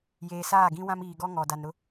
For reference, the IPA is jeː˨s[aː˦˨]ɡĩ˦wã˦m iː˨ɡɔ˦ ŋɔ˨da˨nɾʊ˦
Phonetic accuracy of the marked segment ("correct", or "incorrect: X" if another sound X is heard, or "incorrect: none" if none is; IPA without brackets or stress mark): correct